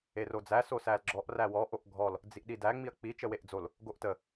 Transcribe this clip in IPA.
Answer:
e r o d͡z æ s o s æ l ɡ͡ǁ ɔ ʔ r æ w ɔ ʔ o ʔ ɡʱ ɔ l | d͡z i ʔ ɗ i d æ ŋ͡m i ɐ̯ k͡p i t͡ʃ ə w e ʔ d͡z o l | ɡ o ʔ t ə

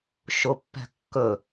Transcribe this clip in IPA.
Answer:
ʃ ʊ pː ɛ̤ kː ɵ

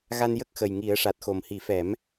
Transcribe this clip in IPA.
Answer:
ɣ a˧ n j ə˦˥ k̚ x ə˨˩ j ŋ i˨˩˦ ə̯ ʂ a˨˩ t̚ x o˨˩ m h i˨˩˦ f ɛ˨˩˦ m

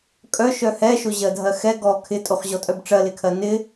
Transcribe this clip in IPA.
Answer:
kʼ œ ʃ œ h ɛ ʃ o ʑ ɜ dʱ ɜ x ɛ ɡ ɔ kʰ ɪ tʼ o χ ʑ ɔ tʼ œ b ʈ͡ʂ ɜ l ɪ kʰ ɜ n ɪ

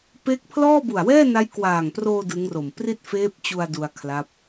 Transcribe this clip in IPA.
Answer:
p e˦˥ k̚ pʰ l ɔː˥˩ b u˨˩ a̯ w ɛː˥˩ n a˦˥ j k w aː˨˩ ŋ p r oː˧ d ɯ˦˥ ŋ r o˨˩ m p r i˥˩ t̚ f eː˦˥ p̚ t͡ɕ u˧ a̯ d u˧ a̯ kʰ l a˦˥ p̚

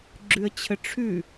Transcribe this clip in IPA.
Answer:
ɡ͡ǁ ʉ ə̯ t͡ɕʰ ə ʈ͡ʂʰ ʉ

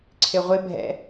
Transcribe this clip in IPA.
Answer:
ǀʰ ɪ ʁʷ ɪ bʱ ɛ̰

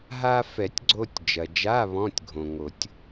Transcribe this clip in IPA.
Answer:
ɦ a˧ f ɛ˨˩˦ tʲ ɡ͡ǀ o˧ tʲ d͡ʒ ɐ˩ d͡ʒ a˧˥˧ β ɔ̃˧˥˧ tʲ ɡʱ õ˩ ŋ o˨˩˦ tʲ

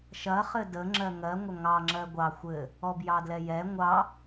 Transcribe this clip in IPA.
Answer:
ʃ ɐ χ ɘ d ə ŋ͡ǁ ɜ ŋ ɜ ŋʷ ɐ ŋ ɑ ŋ͡ǁ ɜ ɡʷ ɑ xʷ ɘ | ɔ b j ɑ d l ɛ j ɛ ŋʷ ɑ

